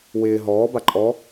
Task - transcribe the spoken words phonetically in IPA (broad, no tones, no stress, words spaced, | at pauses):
wɪː ɦɔːba ǃʼɔ